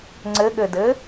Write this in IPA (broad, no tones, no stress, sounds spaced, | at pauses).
ŋ͡ǀ ɘ ɠ ɘ d ɘ